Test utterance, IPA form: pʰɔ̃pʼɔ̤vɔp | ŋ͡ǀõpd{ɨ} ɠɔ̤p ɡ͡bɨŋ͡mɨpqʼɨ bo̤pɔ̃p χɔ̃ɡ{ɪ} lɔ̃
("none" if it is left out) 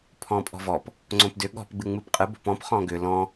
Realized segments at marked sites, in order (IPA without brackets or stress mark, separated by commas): ʏ, ʏ